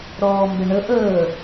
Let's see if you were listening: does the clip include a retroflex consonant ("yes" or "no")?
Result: yes